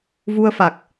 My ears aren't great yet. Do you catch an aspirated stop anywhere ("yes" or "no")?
no